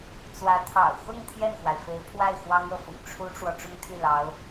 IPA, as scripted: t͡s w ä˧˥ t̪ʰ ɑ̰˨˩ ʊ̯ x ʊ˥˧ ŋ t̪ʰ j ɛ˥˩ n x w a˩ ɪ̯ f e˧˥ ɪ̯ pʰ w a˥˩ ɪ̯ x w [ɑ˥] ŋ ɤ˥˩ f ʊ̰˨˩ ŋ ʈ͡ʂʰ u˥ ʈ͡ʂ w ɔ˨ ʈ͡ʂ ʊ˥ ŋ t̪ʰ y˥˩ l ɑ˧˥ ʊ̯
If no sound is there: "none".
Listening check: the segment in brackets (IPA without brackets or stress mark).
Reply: ɑ˥